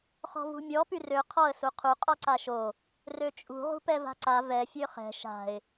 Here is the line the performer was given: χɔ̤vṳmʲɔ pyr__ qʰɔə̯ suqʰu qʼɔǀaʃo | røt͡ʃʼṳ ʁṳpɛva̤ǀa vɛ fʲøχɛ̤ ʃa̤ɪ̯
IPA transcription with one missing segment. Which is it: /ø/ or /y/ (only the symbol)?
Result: ø